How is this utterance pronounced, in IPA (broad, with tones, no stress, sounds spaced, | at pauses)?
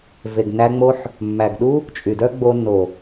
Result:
v e˨ ɡ n æ˧ ŋ͡m o˧ ħ | mː æ˨ ɡ ɗ u˦ | t͡ʃʼ y˨ d œ˦ ɡ͡b o˧ n o˨